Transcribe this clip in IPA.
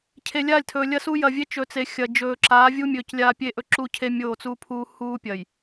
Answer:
cʰ e˨ lʲ a˦˨ lʲ tʰ ɵː˨ lʲ ɐ˦ s uː˦ j ɐ˨ vʲ e˦ t͡ʃ ɵ˨ t͡s e˨ xʲ ɐ˨ d͡ʒ ɵː˨ ǁ aː˨˦ vʲ u˦ mʲ ɵː˨ c lʲ aː˦ pʲ e˦ ʔ ɵ˦ ǁ u˦ cʰ e˦ mʲ oː˦˨ t͡s uː˦ pʰ uː˦ h uː˦ pʲ ɐ˨ j

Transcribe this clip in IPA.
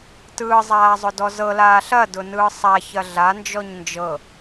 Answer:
t ɯː zˤ aː zˤ ʊ d ɔ z ɤ l aː ɬ ɐ d ʊ n ɯː sˤ a ç ɐ ɮ a n d͡ʒ ɔ ɲ n d͡ʒ ɤ

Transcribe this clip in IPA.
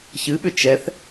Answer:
ç ɨ ɓ ʏ t͡ʃ ɛ θ

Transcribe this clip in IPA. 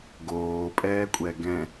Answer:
ɡ oː pʼ ɛː kʷʼ ɛ ɡ ɛ̃

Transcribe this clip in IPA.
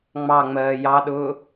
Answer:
ŋ͡m ɑ ŋ͡m ɜː j ɑ ɗ ʊː

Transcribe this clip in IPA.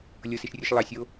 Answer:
lʲ ɤ s e ʃ rʲ ɯ ʃ lˠ ɑ sʲ o

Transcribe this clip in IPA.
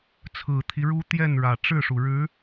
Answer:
t͡sʰ ɹ̩˨˩ t̪ʰ i˦ ɻ u˥ t̪ j ɛ˥˩ n ɻ ä˨˩ ʈ͡ʂ ɻ̩˥˩ ʂ u˩ ɻ ɻ̩˧˥

